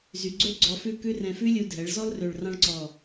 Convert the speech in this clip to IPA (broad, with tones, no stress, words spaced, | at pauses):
zy˩˧ɡ͡ǀø˥ ɡ͡ǀɔ˧fʉ˥˧kʉ˥rɛ̃˧ fʉ˥lʲu˧dʱɛ˩˧ɭzɔ˥l rø˧˩ɭrɑ̃˥ɭǀɔ˧˩